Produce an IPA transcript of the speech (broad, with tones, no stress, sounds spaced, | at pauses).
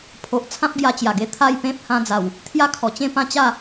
pʰ o˨ ʔ t͡sʰ ã˦ p̚ ɡ j a˧ t͡ɕ j a˨˩ ɡ e˧ t̪ʰ a˥˧ j p ẽ˦ p̚ h ã˧ d͡z a˨˩ w | t̪ʰ j a˦ kʰ ɔ˨˩ t͡ɕ ẽ˥˧ p ã˥˧ t͡ɕ a˥˧